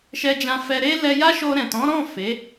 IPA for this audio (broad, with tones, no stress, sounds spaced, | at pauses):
ʃ ɛ˧ d͡ʒ ã˧ f ɛ˧ ɾ e˦ l ɛ˧ j a˦ ʃ o˧ ɾ ɛ̃˨ t ɔ̃˨˦ ɾ ɔ̃˦˨ f e˨˦